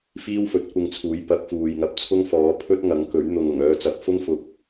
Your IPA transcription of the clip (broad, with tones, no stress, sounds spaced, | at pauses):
f iː˥ w f ɵ˨˥ t̚ kʷ ɪ˧ ŋ t͡sʰ uː˨˥ j p ɐ˨˥ k̚ f uː˨ j ŋ ɐ˧ p̚ t͡sʰ ʊ˥ ŋ f ɔː˨˥ pʰ ɵ˥ t̚ ŋ ɐ˨˥ ŋ k ɵ˨˥ ɥ n̪ ʊ˨ ŋ ʊ˨˩ ŋ œː˧ t͡s ɐ˨˥ p̚ f ʊ˥ ŋ f ʊ˨ k̚